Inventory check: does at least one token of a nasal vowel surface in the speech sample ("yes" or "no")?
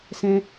yes